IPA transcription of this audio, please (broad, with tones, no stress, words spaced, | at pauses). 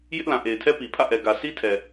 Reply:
jɪ˦ʔlã˨ʔe˨ɪ̯tʰɛ˦ pi˨pʰä̰˦˨ʔɛ˨ ɡä˨sʰi˦tʰɛ˨